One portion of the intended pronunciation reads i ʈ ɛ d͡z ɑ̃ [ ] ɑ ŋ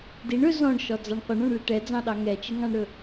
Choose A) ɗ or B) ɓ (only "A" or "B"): A